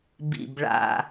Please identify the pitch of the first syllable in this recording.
low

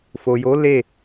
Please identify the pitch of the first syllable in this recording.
low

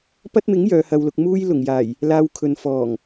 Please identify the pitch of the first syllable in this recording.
high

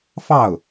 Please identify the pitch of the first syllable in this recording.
falling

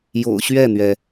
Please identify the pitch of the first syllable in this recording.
low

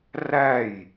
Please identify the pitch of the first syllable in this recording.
falling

